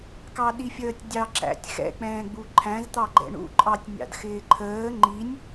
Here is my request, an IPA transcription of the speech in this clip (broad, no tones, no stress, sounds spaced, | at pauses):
k ɑ ɗ i fʲ əː tʲ dʲ ɑ ǁ æ̰ tʲ x ɛ̰ k͡p ɛ̃ː ɡ͡b u ǃʰ æ̃ z t̪ ɑ ɡ͡ǃ ɛ̰ ɳ ṵ ǃʼ ɑ tʲ nʲ ɑ̰ d x ɪː ǃʰ əː ŋ͡ǃ i nʲ